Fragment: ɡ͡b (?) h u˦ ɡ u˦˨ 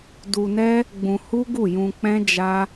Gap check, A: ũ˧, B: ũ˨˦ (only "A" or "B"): A